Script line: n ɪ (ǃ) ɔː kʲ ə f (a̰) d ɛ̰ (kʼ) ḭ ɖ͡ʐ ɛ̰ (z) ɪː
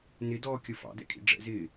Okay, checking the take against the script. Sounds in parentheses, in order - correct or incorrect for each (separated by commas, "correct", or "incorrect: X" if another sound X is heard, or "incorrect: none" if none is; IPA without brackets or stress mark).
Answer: incorrect: d, incorrect: ɑ̰, correct, correct